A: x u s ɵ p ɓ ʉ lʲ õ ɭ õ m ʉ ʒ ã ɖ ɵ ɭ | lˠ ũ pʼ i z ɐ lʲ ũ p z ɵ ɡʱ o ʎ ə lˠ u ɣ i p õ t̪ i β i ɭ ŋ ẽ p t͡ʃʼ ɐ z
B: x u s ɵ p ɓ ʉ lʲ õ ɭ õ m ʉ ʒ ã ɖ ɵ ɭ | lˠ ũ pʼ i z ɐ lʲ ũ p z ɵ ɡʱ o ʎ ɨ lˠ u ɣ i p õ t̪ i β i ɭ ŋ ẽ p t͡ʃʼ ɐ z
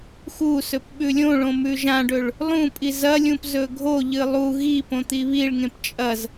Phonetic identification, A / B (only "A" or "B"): B